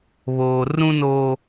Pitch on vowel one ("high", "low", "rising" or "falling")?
low